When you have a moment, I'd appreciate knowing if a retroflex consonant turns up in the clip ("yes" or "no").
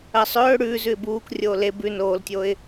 yes